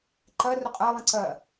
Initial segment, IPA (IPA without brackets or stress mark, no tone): ǃ